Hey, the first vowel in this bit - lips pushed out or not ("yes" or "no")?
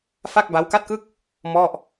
no